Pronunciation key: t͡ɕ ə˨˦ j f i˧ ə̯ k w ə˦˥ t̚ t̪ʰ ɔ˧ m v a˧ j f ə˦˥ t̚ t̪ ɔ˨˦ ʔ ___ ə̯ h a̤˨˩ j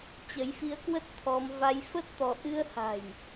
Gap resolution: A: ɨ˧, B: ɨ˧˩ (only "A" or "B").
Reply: A